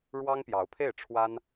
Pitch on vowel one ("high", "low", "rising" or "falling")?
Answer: high